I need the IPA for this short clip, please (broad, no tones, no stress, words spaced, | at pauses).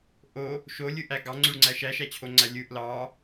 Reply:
ʔo | ʃolʲɯʔæ ɡɑŋ͡ǀyɭŋ͡ǀæ ʃæʃæt͡ɕʰoŋ͡ǀæ lʲɯʔ lɑ